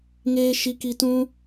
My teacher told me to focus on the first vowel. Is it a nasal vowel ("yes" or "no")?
no